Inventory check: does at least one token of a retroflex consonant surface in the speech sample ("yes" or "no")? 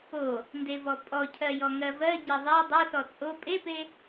no